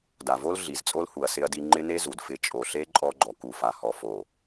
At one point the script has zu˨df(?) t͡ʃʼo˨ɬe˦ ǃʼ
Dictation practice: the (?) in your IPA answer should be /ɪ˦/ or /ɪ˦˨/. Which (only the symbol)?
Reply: ɪ˦˨